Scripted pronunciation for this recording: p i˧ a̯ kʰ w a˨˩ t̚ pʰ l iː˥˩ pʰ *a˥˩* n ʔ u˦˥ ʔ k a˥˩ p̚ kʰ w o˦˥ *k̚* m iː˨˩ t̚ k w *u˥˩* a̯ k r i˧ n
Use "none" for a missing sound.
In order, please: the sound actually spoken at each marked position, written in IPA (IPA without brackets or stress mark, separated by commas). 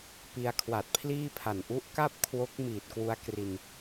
a˨˩, k̚, u˦˥